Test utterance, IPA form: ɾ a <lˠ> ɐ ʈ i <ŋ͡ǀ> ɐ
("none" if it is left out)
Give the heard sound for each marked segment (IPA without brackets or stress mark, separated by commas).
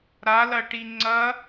l, ŋ͡ǀ